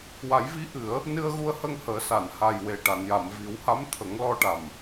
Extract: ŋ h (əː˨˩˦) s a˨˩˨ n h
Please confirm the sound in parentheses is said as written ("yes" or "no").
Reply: yes